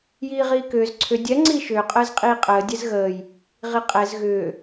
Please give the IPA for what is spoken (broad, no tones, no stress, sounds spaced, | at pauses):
j iː ʁ iː k ʏː z ǀʰ ʏ dʲ ɛ ŋ͡ǀ iː ʃ ʏː qʼ əː z qʼ iː qʼ əː dʲ ɛ z ɣ əː j | ʁ i qʼ ɛ z ɣ ʏː